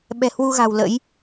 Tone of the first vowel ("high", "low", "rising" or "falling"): low